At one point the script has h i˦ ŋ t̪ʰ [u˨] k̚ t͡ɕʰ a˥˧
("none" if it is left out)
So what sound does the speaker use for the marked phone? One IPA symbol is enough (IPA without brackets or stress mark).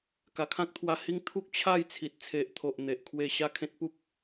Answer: u˦